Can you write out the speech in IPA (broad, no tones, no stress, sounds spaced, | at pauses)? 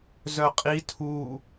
z œ qʼ i tʰ u